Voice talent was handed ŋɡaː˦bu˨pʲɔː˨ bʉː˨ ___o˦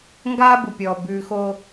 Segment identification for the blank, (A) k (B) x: B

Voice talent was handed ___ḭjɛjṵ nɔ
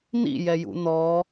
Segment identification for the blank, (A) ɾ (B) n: B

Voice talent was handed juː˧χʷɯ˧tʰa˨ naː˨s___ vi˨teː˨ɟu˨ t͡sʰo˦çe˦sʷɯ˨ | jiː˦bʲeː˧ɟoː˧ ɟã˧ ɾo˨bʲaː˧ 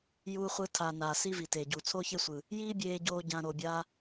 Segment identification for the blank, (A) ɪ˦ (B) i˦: B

